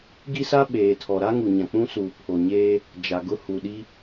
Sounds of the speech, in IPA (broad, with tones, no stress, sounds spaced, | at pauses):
ɡ i˦ s a˦ ɓ eː˨ tʰ ɔ˨ ɾ a˦ ŋ u˨ ɲ ã˨ k͡p ũ˦ s uː˨ pʰ o˨ ɲ eː˦ | d͡ʒ a˨ ɡ ʊ˦ h u˨ ɗ i˦